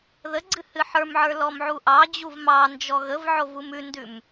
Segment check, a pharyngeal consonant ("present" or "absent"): present